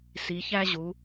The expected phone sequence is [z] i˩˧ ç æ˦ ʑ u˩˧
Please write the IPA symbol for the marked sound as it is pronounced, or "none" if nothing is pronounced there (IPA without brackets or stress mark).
s